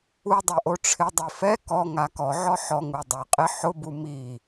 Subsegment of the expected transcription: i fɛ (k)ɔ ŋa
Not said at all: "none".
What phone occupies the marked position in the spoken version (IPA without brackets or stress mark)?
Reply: k